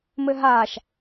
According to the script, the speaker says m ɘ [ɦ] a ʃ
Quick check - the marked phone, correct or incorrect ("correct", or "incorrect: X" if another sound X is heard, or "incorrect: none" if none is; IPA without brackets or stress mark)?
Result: correct